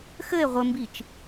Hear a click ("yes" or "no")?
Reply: no